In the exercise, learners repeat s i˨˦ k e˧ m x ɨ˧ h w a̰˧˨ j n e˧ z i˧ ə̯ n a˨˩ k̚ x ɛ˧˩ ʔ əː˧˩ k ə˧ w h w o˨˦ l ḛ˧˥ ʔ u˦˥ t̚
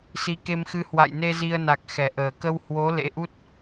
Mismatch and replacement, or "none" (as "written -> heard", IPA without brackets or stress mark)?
none